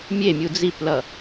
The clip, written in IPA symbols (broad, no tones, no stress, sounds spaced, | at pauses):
mʲ e mʲ u d͡z i p l ʌ